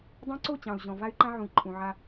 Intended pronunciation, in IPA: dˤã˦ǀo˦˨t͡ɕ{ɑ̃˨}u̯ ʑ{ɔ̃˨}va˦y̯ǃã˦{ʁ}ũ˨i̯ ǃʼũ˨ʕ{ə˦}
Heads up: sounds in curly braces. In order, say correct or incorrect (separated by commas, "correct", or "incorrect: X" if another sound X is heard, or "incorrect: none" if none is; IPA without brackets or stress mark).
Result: correct, correct, incorrect: ʕ, incorrect: a˦